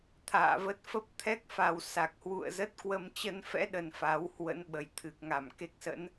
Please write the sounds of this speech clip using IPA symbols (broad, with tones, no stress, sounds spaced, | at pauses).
t̪ʰ a̰ː˧˨ v ə˦˥ t̚ f ə˦˥ p̚ t̪ʰ ɛ˦˥ k̚ f a˨˩ w s a˨˩ k̚ h w ṵ˧˨ ə̯ z ə˦˥ t̚ k w ə˧ m t͡ɕ ə˧ n f ɛ̰˧˥ ɗ ə˨˩ n f a˨˦ w h w ə̰˧˥ n ɓ ə˨˩ j t̪ʰ ɨ˨˩ k̚ ŋ a˧˩ m k e˦˥ k̚ s ə̰˧˥ n